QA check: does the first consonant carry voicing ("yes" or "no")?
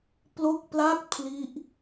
no